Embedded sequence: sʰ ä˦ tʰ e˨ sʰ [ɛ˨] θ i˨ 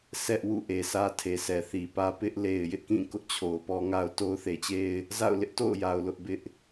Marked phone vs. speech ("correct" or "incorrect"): correct